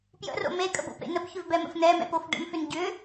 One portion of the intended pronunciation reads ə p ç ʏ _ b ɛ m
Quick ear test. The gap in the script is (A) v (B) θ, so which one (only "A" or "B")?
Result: A